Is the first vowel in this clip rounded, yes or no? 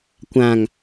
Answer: no